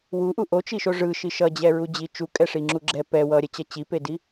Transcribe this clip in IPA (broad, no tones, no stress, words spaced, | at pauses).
wuʔu ʔot͡ʃiʃo ʐɯʃi ʃʌd͡ʑɛɹu d͡ʑit͡ʃukʼɛʂi ŋ͡ǁuɡ͡ǁɛ pɛ wʌɾʲɛt͡ɕʌ t͡ɕipedi